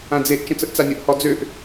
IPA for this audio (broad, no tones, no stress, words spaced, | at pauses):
ãd͡zeʔ t͡ʃə̃t͡səʔt͡sanʲəʔ hɔd͡zøʔ